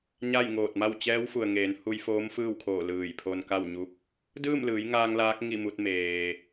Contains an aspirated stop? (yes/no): yes